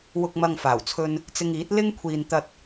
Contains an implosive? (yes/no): no